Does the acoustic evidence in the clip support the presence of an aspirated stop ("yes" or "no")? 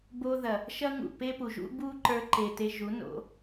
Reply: no